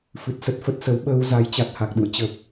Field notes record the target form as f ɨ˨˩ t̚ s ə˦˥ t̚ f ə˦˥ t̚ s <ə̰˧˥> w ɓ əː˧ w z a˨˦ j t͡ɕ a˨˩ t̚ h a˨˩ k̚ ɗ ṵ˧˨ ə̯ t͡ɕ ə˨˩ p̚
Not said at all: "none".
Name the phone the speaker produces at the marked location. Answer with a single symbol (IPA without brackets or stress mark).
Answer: ə˨˦